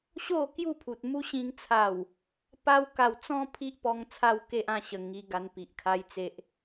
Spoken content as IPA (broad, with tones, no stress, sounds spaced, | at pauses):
ɕ o˥˧ k j u˥˧ pʰ u˨ t̚ m u˦ ɕ ĩ˧ ŋ t͡sʰ a˨˩ w | p a˦ w k a˧ w t͡s ɔ̃˦ pʰ i˦ ʔ p ɔ˧ ŋ t͡sʰ a˦ w k e˦ ʔ ã˧ ɕ ə˨˩ ŋ i˧ ɡ a˧ n p i˨ ʔ kʰ a˦ j t͡s e˨ ʔ